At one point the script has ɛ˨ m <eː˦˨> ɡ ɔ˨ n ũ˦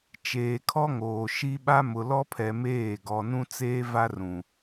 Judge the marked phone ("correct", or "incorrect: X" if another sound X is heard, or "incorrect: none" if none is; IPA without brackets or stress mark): correct